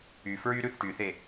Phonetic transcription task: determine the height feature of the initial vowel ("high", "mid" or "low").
high